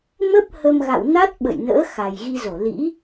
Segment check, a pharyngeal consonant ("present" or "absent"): absent